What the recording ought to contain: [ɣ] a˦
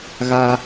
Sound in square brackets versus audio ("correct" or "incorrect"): correct